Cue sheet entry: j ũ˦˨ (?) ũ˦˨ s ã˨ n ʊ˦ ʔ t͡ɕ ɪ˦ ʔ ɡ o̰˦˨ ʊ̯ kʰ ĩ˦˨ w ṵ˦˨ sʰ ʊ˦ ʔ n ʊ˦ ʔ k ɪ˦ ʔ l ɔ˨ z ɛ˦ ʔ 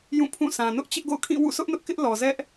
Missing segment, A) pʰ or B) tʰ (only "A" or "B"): A